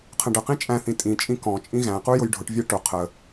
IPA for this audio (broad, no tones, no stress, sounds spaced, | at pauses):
qʰ ə̃ ɖ ə q ĩ t͡ʃʼ æ̃ θ ĩ tʼ ĩ t͡ʃʼ ĩ k ɔ̃ t͡ʃʼ ĩ ɣ æ̃ q u j ʊ j ɖʱ ʊ ʈ vʲ æ ʈ ʊ qʰ ə